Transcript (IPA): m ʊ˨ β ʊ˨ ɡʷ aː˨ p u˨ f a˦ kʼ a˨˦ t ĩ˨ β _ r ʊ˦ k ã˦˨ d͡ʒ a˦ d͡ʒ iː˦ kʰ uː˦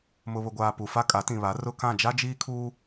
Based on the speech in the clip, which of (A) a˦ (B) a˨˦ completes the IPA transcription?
B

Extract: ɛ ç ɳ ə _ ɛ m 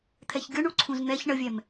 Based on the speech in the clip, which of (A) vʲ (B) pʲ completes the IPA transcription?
A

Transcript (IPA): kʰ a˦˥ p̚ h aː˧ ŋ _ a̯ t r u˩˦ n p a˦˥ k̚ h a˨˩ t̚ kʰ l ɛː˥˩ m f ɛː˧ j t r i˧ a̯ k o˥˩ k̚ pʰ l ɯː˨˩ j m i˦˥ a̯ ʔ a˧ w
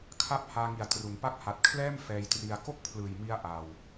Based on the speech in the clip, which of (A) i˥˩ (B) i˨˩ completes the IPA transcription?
B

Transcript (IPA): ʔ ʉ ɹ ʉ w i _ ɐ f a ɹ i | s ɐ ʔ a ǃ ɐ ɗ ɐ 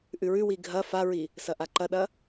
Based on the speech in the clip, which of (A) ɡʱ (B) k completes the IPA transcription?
A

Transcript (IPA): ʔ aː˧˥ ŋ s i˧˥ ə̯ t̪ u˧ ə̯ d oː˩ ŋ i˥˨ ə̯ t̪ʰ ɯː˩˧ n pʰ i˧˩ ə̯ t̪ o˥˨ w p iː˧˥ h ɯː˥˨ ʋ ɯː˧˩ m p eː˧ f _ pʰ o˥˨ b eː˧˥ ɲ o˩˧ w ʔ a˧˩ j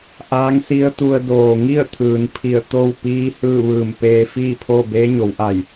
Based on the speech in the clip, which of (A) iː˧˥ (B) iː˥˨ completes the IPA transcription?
B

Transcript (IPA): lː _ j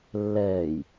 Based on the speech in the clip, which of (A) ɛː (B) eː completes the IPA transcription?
A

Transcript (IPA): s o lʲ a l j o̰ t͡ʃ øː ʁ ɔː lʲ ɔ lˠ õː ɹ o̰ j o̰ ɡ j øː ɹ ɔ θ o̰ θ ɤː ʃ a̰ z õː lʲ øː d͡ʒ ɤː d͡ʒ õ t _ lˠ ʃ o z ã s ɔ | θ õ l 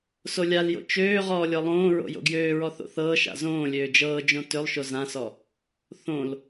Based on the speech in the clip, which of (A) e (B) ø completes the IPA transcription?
B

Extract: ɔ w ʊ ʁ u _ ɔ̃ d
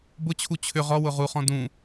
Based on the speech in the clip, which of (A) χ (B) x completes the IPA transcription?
A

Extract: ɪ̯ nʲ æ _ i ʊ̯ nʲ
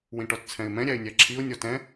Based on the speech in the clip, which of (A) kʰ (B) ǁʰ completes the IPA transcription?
B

